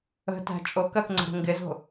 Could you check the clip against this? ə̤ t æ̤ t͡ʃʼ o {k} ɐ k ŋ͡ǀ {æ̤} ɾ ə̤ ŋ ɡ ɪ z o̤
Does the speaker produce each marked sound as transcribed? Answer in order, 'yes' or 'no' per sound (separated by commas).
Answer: yes, no